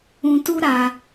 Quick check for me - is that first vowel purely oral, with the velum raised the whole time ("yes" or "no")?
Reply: no